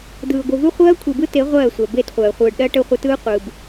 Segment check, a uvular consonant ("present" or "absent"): present